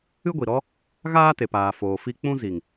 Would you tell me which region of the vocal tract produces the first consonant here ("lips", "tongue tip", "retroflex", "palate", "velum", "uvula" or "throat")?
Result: velum